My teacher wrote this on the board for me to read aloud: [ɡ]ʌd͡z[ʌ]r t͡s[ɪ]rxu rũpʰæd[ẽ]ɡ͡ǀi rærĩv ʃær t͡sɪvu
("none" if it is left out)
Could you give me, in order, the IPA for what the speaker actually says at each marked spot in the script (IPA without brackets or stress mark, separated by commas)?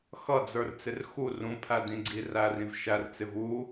x, ə˞, ɪ, ĩ